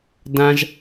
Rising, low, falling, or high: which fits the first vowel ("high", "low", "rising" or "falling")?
high